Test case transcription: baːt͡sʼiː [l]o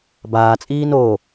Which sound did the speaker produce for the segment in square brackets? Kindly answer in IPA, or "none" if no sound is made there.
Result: n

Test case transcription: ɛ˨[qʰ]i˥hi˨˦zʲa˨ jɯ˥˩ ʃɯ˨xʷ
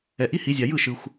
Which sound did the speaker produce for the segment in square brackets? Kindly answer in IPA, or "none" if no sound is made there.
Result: ʔ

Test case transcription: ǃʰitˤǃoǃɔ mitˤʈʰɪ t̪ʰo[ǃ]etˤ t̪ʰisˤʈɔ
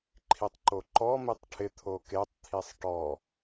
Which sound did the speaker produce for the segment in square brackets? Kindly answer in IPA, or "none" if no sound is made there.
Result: k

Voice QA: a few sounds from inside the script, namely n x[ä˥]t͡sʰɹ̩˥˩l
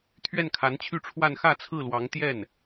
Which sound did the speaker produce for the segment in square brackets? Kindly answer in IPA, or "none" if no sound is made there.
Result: ä˥˧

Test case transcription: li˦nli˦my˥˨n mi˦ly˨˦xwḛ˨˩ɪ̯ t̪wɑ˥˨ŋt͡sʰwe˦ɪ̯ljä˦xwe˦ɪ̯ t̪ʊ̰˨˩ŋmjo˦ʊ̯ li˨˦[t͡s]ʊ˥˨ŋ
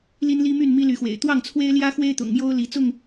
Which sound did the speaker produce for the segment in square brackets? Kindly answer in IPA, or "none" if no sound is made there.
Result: t͡s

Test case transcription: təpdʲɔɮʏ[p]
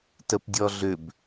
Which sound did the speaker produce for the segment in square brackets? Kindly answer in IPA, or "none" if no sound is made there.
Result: b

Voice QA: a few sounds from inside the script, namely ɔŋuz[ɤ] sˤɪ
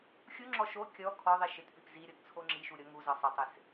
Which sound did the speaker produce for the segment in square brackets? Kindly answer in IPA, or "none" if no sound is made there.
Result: ɤ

